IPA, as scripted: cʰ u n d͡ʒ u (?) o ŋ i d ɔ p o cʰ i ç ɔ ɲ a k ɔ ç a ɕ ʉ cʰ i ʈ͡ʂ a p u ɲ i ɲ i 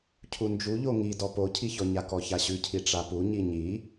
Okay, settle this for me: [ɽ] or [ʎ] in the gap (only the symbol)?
ʎ